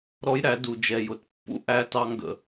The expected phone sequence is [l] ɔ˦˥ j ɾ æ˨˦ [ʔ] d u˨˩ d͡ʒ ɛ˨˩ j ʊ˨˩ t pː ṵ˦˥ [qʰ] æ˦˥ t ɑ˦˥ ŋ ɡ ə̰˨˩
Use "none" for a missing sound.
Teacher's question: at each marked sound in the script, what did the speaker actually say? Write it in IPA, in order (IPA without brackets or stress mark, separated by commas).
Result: ɾ, none, ʔ